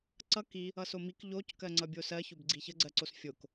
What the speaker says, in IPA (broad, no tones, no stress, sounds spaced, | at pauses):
ǀ ʌ k i | ʌ s o m i k ʎ o c k ɜ ŋ͡ǀ ʌ bʲ o s ɜ ç o b ɡ͡ǀ i ç ə ɡ͡ǀ ɜ ǀ o s fʲ o k